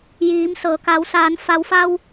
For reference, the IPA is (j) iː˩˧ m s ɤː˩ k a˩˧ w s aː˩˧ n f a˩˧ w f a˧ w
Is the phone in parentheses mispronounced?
no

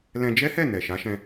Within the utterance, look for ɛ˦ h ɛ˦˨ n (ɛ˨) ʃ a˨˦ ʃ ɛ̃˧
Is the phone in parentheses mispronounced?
no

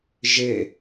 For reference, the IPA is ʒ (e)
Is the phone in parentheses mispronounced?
no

